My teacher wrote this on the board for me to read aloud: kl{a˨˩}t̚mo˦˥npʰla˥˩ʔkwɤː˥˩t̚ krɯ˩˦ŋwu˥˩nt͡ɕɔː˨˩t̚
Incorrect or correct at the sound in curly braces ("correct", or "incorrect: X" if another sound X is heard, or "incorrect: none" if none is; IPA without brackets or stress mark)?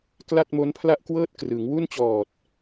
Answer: incorrect: a˥˩